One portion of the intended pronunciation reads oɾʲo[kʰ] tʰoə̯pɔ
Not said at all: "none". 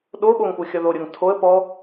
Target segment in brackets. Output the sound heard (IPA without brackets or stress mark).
ŋ